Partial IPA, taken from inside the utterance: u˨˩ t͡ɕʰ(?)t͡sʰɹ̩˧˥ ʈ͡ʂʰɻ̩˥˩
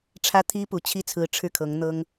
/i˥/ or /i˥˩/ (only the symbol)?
i˥